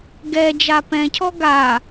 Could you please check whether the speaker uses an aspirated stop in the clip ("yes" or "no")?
yes